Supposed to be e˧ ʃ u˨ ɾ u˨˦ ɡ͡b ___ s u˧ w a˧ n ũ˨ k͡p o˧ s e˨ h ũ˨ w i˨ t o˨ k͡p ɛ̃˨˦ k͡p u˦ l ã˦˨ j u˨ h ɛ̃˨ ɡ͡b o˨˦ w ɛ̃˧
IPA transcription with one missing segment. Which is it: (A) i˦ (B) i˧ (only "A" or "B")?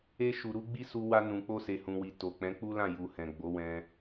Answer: A